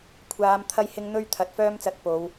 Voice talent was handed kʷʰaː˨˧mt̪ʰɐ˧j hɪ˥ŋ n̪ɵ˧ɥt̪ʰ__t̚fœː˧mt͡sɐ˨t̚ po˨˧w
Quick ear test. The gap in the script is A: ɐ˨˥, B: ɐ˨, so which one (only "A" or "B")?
B